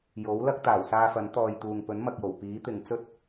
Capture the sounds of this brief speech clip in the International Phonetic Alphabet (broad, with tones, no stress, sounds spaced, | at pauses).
j o˨˥ w l ɐ˥ k̚ t̪ aː˨˩ w s aː˧ f ɐ˨˥ n t̪ ɔː˨ j t̪ uː˨ ŋ p ɵ˨˥ n m ɐ˨ k̚ j o˨˩ w p iː˨˥ t̪ ɪ˨ ŋ t͡s ɵ˥ t̚